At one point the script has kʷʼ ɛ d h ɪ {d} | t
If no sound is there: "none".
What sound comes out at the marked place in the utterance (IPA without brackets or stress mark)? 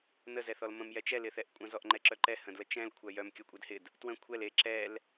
d